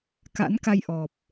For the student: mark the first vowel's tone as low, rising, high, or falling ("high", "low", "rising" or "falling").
rising